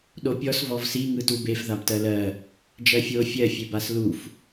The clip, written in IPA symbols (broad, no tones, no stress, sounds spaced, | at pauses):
ɗ o pʲ ɔ s v ɔ v s i ŋ ɯ t u b e f ð a b t ɜ l ɜ | d͡ʒ ɜ fʲ o fʲ ɜ fʲ e b a s l u f